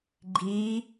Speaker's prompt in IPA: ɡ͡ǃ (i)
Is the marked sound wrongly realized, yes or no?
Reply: no